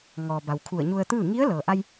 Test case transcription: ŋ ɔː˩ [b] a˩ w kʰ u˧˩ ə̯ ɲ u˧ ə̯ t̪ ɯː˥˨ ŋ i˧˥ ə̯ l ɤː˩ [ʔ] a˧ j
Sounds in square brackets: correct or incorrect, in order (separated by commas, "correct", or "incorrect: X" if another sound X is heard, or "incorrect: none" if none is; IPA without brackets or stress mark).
correct, correct